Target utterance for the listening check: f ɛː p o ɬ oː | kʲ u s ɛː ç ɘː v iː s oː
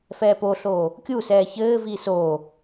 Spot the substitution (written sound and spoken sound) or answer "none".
none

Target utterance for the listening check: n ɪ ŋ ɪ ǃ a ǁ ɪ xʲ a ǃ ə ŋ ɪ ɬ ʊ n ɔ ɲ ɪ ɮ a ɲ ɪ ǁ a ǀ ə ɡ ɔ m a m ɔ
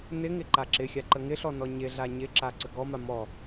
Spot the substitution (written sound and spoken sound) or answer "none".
ʊ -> ɔ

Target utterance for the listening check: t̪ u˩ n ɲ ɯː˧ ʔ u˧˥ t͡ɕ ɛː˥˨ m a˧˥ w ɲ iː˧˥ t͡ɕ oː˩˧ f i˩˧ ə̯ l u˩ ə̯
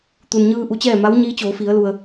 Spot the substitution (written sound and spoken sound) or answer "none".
none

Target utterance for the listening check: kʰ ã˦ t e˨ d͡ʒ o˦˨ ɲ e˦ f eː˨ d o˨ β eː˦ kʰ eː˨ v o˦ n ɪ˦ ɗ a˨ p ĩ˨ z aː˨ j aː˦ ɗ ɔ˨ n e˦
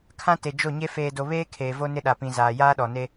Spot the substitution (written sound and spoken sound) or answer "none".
none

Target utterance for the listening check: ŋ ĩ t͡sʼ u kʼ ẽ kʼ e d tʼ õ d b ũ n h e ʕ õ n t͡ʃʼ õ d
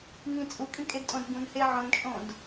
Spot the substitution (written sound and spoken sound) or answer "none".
ẽ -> ĩ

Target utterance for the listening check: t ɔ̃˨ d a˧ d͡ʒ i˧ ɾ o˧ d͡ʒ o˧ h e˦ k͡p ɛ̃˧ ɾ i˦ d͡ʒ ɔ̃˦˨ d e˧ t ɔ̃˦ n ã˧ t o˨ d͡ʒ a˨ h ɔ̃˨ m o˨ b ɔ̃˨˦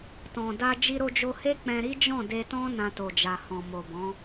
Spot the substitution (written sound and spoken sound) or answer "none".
none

